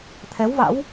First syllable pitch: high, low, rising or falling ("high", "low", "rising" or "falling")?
rising